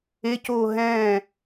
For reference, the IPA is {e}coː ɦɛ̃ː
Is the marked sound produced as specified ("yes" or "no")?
yes